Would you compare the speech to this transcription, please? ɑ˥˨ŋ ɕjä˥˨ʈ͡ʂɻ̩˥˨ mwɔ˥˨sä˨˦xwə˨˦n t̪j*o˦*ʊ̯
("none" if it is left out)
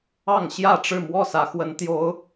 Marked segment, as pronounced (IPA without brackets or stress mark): o˨˦